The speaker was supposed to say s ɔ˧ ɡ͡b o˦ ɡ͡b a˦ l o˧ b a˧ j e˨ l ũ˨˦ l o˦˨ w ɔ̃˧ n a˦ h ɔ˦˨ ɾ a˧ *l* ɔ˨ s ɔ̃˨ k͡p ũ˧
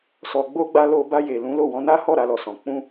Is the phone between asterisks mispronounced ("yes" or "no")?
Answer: no